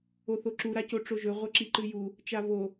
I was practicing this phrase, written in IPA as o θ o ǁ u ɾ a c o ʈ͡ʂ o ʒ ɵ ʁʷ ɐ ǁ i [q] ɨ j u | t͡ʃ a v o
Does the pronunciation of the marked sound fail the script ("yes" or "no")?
yes